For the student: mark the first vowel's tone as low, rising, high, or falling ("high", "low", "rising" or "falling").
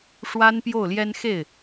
high